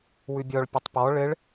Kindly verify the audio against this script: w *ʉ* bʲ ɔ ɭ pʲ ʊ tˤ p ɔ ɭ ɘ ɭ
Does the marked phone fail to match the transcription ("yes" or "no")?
no